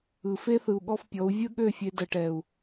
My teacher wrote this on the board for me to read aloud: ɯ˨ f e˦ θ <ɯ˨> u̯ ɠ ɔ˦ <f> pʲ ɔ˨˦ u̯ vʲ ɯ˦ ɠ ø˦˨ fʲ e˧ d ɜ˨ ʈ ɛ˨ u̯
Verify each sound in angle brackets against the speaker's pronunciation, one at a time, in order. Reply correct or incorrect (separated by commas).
correct, correct